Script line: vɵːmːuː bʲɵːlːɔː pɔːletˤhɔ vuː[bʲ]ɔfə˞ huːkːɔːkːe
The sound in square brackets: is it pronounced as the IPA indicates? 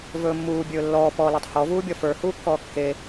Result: yes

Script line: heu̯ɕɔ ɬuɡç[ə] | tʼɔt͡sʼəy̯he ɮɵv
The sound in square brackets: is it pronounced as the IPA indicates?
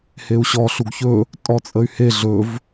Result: no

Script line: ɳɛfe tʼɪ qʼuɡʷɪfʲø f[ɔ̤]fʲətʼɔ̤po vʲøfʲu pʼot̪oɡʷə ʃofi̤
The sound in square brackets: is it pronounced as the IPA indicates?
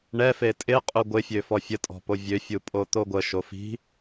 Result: no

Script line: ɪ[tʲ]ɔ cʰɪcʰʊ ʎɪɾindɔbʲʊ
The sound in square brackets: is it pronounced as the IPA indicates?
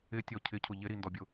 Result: yes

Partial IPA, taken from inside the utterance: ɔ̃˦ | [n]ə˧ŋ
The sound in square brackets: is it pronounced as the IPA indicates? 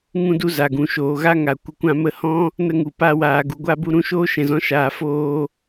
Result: yes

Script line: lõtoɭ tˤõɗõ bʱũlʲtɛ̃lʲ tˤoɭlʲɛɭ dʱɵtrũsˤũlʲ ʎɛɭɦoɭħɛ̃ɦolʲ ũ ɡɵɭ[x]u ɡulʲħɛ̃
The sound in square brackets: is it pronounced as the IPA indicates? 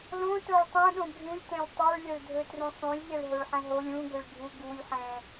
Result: no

